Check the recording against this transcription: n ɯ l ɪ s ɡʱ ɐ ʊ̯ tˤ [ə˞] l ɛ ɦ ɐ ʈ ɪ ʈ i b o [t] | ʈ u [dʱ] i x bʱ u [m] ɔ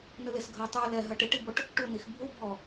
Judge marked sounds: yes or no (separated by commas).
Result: yes, no, no, no